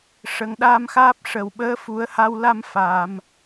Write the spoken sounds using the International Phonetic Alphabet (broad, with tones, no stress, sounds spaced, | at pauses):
ʂ ə˨˩ ŋ ɗ aː˧ m x aː˦˥ p̚ ʂ ə˨˩ w ɓ əː˧˥ f u˨˩˦ ə̯ h a˧ w l a˧ m f aː˨˩˨ m